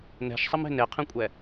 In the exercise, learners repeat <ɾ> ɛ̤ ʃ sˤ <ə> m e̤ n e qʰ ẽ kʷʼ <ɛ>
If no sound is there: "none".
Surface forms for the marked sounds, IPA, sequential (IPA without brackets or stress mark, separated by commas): n, ə, ɛ